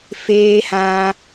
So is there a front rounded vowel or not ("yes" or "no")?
no